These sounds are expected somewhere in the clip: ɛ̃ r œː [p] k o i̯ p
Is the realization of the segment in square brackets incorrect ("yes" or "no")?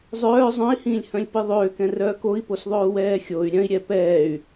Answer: yes